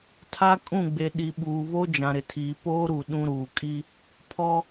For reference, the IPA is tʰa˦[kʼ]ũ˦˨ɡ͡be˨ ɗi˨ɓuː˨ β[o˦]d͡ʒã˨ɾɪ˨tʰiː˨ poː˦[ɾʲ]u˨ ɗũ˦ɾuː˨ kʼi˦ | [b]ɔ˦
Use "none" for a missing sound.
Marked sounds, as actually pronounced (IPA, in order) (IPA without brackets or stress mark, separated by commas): kʼ, o˦, ɾ, pʰ